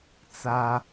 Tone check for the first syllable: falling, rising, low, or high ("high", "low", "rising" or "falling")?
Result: high